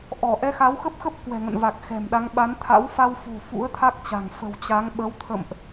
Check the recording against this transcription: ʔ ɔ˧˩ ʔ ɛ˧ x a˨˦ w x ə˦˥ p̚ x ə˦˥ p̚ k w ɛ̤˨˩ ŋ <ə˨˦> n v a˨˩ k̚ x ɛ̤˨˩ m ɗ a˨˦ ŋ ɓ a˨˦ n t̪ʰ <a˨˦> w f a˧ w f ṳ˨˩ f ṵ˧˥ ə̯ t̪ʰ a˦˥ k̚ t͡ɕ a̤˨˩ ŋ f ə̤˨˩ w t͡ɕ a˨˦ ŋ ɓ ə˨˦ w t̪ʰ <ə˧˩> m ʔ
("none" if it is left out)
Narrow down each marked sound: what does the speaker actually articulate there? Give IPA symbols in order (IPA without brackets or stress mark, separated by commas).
ə̰˧˨, a̰˧˥, ə̰˧˨